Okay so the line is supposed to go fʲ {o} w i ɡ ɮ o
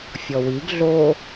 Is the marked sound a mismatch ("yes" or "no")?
yes